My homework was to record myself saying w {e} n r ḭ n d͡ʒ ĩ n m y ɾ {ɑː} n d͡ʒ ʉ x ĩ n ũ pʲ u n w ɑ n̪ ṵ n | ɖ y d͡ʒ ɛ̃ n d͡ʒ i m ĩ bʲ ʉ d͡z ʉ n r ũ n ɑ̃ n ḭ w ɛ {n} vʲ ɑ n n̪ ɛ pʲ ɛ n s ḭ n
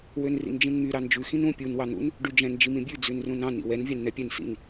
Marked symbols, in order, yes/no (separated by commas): no, no, yes